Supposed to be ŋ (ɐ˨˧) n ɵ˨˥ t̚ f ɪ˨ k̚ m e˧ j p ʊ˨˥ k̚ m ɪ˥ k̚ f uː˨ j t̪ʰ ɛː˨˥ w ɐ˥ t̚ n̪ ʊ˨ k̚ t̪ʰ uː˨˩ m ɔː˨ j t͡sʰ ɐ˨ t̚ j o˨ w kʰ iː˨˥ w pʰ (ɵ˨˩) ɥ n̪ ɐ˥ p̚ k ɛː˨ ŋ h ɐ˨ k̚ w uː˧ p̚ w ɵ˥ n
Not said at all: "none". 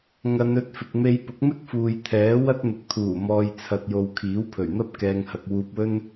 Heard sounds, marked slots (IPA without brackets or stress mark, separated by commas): ɐ˨˧, ɵ˨˩